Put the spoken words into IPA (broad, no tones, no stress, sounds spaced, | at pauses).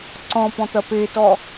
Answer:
ǀ ɔ̃ p ɔ̃ t̪ ɐ p e t ɔ